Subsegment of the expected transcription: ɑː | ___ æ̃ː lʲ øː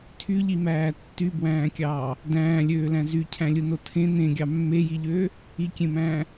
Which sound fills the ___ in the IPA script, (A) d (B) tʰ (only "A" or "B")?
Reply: A